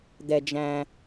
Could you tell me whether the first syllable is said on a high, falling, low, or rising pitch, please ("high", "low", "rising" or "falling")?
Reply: low